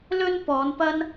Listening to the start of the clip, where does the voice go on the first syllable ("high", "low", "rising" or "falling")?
high